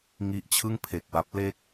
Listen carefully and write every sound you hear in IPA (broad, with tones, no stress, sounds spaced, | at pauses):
ŋ i˦˥ ʔ t͡ɕʰ ɯ˥˩ ŋ pʰ e˨˩ k̚ w a˦˥ p̚ l e˥˩ k̚